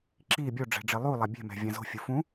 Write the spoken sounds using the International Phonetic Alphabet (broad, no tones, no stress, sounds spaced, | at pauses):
ǁ i bʲ o ɖ͡ʐ ɛ̤ ɖ͡ʐ ɪ lˠ u lˠ a bʲ ɛ̤ m ɛ̤ vʲ ã z o̤ fʲ u f ũ